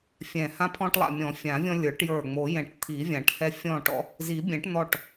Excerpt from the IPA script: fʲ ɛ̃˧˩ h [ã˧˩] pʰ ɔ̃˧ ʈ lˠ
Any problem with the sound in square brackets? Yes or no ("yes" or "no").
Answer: yes